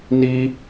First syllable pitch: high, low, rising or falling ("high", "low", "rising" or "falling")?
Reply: high